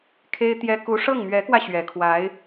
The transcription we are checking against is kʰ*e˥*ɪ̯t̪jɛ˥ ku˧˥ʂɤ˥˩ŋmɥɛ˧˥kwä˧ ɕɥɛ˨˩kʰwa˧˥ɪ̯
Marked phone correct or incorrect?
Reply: correct